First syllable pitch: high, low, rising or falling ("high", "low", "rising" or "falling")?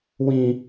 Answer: high